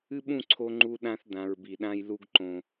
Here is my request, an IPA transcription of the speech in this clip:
ɨ˦ ɓ ũ˦˨ ǀʰ o˦ ŋ͡ǃ u˦ ɗ ã˦ θ d ã˨ ɹ b i˨ ɗ ã˦ j l u˦ ɡ ǃ õ˨

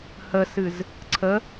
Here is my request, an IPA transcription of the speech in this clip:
h ə s ɨ z | ǀʰ ə

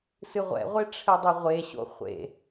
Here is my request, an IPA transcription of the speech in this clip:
s ɨ ʁʷ ɛ̰ ʁʷ e ʈ͡ʂʰ ɘ dˤ e ʁʷ e ɕ o̰ χʷ ḛ

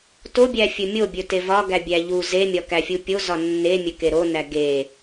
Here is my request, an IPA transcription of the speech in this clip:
t o bʲ æ fʲ ɵ mʲ o bʲ ɵ t e v ɒ ɡ æ bʲ æ ʎ u z e mʲ ɒ k æ fʲ u pʲ o z ɒ nː e mʲ ɵ k e ɾ o n æ ɡ e

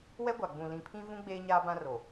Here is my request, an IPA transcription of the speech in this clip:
w ɛ˦ ɡʷ a˨ ɡ͡b ũ˨ l ĩ˨ pʰ ĩ˦ v ũ˦ ɡ͡b eː˦ ɲ aː˦ b ã˦ r o˨

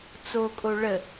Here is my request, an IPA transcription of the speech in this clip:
t͡s o kʼ o ɭ ə

